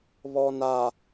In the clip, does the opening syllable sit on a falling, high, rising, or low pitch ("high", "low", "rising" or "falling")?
low